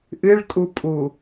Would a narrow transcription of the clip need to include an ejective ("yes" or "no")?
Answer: yes